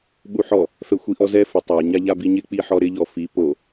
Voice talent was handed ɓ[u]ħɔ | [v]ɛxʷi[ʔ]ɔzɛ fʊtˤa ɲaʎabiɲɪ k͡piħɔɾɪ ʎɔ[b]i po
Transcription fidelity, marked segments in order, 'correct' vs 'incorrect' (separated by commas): correct, incorrect, correct, incorrect